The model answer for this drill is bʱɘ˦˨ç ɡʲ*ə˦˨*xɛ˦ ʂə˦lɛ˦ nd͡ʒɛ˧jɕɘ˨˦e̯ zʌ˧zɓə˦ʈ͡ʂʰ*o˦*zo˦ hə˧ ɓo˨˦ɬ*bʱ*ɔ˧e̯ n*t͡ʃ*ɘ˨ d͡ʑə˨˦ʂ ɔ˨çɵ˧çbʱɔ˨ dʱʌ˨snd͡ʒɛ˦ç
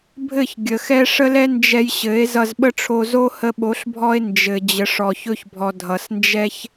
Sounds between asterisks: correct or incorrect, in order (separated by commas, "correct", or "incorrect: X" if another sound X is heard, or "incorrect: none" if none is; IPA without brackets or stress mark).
incorrect: ə˨, incorrect: o˧, correct, incorrect: d͡ʒ